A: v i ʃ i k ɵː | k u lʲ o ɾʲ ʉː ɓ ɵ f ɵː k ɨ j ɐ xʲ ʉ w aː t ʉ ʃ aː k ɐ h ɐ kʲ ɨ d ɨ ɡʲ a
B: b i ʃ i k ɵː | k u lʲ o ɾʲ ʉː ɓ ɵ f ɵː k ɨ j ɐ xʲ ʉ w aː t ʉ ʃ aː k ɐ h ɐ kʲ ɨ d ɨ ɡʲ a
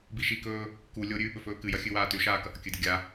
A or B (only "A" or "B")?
B